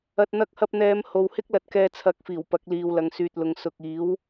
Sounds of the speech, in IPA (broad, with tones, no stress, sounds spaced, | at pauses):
ɐ˨ t̚ n̪ ɐ˧ k̚ h ɐ˧ p̚ n̪ ɛː˨˧ m h o˨ w h ɪ˥ k̚ l ɐ˨˥ t̚ k ɛː˧ t͡sʰ ɐ˨˥ k̚ f iː˨˩ w p ɐ˨˥ k̚ l iː˨ w l ɐ˨ ŋ s yː˨ t̚ l ʊ˨˧ ŋ s ʊ˨ k̚ iː˨˥ w